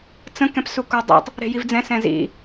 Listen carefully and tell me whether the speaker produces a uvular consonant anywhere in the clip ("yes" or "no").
no